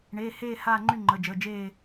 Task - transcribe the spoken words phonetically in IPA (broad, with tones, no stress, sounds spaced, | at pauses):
ɳ eː˩˧˩ h eː˦˨ h aː˦˨ ŋ͡ǃ y˦˨ ŋ͡ǃ ə˩˧˩ d͡ʒ əː˩˧˩ d͡ʒ eː˦˨